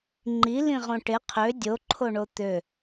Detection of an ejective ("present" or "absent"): absent